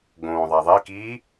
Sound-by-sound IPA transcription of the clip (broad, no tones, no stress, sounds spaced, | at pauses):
ɡ õː ðˤ æ ðˤ e k iː